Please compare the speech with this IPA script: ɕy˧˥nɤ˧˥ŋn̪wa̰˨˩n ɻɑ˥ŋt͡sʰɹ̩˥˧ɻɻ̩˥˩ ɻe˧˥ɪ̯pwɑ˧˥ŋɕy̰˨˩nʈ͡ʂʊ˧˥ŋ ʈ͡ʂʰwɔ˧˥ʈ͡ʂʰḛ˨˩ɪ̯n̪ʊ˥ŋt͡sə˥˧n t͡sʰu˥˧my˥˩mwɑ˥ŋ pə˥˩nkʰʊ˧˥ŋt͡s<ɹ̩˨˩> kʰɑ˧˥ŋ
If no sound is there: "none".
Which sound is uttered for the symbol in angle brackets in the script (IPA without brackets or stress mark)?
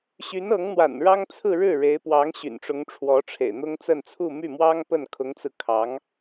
ɹ̩˧